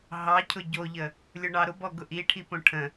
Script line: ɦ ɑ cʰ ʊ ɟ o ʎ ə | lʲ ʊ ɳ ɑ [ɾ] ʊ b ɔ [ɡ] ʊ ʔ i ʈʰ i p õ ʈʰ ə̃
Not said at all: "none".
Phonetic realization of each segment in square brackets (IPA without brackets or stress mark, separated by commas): ɾ, ɡ